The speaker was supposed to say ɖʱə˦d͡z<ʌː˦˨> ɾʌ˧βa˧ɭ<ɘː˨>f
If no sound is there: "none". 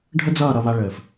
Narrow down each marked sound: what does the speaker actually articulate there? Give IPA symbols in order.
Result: ʌː˦˨, ɘː˨

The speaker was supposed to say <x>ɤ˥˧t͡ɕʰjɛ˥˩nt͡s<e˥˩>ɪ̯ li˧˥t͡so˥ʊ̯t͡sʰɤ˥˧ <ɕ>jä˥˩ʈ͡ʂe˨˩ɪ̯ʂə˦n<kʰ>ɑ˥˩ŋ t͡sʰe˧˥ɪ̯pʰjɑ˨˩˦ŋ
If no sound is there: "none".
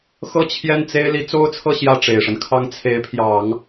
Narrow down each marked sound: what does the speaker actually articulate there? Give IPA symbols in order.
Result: x, e˥, ɕ, kʰ

